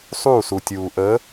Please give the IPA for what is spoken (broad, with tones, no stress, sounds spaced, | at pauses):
sˤ uː˥˩ s u˩ tʲ uː˩ ʔ ə˨˥